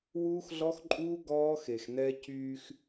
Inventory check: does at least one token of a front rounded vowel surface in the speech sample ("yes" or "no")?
yes